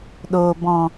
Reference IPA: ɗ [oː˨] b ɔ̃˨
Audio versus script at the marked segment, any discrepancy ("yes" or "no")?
no